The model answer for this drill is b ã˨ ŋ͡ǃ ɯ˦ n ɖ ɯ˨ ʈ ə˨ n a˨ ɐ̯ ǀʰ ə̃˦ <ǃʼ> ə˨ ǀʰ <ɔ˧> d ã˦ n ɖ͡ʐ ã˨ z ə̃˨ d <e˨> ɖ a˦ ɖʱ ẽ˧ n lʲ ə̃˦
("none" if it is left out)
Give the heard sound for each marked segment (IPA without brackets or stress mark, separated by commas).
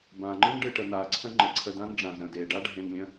ŋ͡ǃ, ə˧, e˨